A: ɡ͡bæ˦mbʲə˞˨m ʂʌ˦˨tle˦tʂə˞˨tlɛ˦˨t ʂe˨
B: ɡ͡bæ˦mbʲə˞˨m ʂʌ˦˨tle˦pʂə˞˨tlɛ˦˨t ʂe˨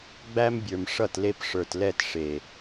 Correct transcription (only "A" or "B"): B